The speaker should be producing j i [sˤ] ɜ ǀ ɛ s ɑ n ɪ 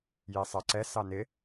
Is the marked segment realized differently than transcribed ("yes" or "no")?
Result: no